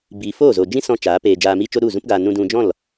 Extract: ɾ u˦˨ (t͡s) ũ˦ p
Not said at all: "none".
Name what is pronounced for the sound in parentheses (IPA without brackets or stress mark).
z